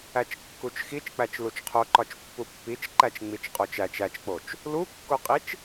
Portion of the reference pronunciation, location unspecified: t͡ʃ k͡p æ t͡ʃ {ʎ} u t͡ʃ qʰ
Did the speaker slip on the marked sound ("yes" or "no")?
yes